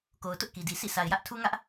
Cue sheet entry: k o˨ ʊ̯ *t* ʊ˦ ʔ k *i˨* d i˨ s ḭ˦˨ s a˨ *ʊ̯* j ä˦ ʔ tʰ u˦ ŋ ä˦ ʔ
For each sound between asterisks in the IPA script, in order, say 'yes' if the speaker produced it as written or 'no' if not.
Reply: yes, yes, no

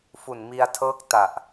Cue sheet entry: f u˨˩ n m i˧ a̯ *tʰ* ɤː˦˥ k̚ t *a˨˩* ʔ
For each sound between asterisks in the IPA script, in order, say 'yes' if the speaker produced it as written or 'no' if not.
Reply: yes, yes

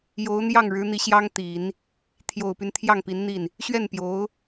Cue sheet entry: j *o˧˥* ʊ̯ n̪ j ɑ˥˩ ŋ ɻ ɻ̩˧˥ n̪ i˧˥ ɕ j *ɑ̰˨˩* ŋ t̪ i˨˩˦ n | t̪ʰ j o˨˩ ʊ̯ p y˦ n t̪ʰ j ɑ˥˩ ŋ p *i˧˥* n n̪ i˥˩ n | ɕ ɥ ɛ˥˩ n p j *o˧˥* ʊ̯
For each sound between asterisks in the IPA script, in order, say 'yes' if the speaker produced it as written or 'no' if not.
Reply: yes, no, yes, yes

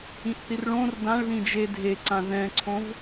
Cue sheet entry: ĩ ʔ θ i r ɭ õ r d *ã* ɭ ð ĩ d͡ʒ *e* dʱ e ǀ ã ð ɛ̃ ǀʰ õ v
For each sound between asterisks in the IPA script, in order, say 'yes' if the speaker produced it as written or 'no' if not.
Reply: yes, yes

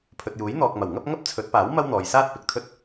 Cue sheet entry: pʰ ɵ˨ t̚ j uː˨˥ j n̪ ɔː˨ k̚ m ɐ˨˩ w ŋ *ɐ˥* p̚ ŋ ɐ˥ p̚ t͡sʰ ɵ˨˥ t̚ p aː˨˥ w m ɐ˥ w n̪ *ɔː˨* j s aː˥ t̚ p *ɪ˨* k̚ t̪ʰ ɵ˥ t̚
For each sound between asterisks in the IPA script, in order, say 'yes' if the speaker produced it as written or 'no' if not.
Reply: yes, yes, yes

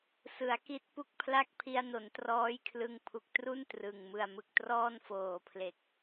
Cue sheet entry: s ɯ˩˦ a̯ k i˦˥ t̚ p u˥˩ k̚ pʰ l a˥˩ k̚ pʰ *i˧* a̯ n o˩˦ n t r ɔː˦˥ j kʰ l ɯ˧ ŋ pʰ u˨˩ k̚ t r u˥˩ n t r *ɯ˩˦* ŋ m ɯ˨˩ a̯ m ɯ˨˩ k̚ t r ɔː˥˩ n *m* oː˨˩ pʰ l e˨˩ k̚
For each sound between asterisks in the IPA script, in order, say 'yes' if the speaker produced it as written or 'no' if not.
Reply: yes, no, no

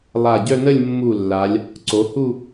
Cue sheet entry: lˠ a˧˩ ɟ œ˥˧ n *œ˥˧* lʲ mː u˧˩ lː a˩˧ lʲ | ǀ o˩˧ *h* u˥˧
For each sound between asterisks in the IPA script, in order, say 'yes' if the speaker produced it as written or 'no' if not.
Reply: no, yes

